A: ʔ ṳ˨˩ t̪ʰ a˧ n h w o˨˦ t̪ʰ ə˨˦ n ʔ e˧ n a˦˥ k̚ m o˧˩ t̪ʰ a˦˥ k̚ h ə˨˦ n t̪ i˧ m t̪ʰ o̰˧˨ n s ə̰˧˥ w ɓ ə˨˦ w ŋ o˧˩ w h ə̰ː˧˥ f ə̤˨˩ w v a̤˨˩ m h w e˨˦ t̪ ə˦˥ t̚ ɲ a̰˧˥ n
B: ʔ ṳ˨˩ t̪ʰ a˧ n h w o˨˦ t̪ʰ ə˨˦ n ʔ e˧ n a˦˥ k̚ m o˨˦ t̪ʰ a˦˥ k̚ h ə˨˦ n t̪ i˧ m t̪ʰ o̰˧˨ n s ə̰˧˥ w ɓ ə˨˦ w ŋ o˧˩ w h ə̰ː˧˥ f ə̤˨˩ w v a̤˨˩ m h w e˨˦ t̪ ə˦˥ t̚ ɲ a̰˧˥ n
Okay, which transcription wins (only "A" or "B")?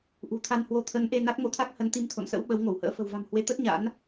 B